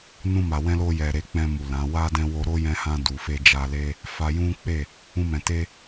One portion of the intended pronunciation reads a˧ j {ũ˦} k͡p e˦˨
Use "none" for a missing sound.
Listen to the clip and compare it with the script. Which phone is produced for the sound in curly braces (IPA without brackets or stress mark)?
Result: ũ˦